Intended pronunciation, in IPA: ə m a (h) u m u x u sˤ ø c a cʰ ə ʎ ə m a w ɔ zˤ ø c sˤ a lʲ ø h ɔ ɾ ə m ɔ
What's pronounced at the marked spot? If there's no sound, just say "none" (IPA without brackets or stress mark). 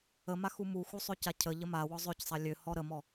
x